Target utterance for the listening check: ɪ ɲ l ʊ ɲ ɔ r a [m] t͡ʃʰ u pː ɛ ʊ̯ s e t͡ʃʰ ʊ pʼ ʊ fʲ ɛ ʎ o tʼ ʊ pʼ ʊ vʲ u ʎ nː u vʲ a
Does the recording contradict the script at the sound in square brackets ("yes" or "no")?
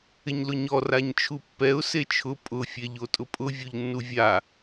yes